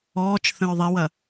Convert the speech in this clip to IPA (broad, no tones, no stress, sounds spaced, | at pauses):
ɔː t͡ʃ θ ə̃ ɹ ðˤ e w ɐ